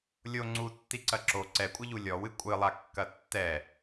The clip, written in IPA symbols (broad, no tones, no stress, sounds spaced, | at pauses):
lʲ o ŋ͡ǀ u tː i ǀ ɐ ǁ o ǀ ɛ kʷʼ ɘ ʎ u lʲ ɔ w ɨ kʷʼ ɨ lˠ a kː ɐ tː ɛ